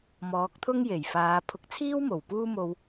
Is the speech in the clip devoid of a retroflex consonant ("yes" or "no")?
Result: yes